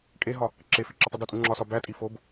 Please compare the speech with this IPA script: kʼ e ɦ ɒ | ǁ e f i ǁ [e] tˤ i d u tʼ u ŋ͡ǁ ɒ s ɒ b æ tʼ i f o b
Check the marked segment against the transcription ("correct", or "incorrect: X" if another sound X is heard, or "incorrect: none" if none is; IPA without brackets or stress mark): correct